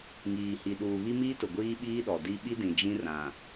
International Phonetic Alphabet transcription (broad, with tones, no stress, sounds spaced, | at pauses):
ŋ iː˨ h i˨ ɗ uː˨ β i˦ m iː˦ t ʊ˨ ɡʷ iː˦ ɓ iː˦ ɗ ɔ˨ d i˦ ɓ i˦ d ĩ˨ d͡ʒ ĩ˦ r ã˨